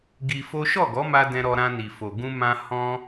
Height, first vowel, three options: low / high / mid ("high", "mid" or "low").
high